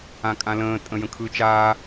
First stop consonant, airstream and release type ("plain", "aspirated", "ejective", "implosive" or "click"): ejective